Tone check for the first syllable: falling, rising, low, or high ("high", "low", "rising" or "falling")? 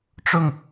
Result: falling